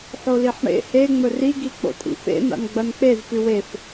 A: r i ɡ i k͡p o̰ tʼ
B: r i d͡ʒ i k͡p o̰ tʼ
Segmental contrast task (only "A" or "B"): A